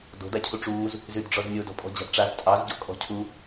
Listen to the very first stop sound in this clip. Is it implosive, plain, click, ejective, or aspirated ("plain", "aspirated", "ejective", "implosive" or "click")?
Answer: plain